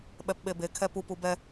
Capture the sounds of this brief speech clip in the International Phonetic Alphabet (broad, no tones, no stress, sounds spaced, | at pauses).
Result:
ɓ ɛ p ɓ e b e kʰ ɛ p u p u b ɛ